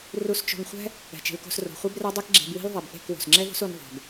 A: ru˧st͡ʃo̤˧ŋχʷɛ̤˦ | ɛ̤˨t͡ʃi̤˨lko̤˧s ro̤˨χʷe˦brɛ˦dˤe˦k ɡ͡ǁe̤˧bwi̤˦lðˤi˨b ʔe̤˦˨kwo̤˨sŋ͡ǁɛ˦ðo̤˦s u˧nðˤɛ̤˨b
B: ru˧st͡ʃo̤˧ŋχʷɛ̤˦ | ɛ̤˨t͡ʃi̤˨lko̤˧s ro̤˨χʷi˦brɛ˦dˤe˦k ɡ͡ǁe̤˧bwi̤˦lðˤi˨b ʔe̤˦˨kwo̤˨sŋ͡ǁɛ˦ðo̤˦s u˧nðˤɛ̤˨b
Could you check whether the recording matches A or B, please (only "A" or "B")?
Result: A